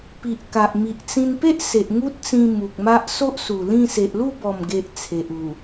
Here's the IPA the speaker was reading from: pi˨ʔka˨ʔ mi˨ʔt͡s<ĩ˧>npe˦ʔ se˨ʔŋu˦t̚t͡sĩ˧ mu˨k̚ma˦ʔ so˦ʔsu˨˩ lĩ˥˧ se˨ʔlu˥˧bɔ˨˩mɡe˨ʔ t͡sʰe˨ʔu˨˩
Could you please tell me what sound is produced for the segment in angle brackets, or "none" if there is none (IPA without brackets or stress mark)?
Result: ĩ˧